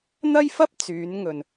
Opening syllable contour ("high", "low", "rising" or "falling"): high